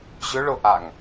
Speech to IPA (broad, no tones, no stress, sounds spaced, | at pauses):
ʑ ʏ ɭ ʊ ʔ a ŋ